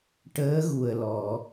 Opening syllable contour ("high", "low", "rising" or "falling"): rising